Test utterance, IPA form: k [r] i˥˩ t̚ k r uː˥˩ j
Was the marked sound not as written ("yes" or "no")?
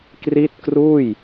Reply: no